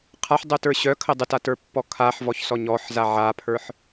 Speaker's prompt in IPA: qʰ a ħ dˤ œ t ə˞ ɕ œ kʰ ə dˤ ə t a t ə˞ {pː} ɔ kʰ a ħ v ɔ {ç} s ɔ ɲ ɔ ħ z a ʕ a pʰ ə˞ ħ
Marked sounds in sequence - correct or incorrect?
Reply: correct, correct

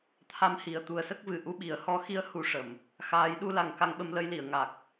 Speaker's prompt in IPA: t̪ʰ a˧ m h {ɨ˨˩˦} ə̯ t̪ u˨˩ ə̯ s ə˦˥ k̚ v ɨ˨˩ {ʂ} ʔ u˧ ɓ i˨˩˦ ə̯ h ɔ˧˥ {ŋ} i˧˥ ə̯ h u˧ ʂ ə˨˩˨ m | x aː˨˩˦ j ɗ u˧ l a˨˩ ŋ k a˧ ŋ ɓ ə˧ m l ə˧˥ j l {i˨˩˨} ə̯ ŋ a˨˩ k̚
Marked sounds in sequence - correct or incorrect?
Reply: incorrect, incorrect, incorrect, correct

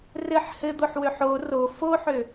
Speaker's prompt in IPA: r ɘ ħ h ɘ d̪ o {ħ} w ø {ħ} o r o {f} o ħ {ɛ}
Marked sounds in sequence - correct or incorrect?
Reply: correct, correct, correct, incorrect

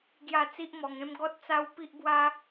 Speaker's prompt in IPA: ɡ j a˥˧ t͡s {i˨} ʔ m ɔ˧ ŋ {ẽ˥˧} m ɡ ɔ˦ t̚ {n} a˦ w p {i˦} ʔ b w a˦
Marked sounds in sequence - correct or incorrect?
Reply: incorrect, incorrect, incorrect, correct

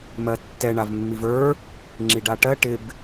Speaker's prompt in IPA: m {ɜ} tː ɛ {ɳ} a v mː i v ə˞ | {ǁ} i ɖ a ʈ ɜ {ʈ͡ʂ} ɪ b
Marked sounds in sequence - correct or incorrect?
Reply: correct, correct, incorrect, incorrect

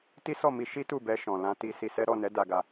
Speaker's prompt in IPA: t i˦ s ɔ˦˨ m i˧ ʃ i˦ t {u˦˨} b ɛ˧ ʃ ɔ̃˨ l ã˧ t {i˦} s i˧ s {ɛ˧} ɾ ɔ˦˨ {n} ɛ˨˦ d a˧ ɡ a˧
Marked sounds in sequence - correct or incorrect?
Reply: correct, incorrect, incorrect, correct

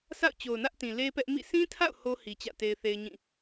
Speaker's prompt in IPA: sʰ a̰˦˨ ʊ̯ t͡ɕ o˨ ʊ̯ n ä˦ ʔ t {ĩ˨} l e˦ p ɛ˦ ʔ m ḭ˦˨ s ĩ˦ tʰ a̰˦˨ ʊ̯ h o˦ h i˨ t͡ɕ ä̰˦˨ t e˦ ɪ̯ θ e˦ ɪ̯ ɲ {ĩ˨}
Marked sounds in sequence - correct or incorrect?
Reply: correct, incorrect

